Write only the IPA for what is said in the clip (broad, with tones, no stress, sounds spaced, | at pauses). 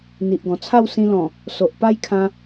n̪ i˨ ʔ ɡ ɔ̃˨˩ t͡sʰ a˥˧ w s ĩ˧ l ɔ̃˨˩ | s o˨ ʔ p a˦ j kʰ ã˧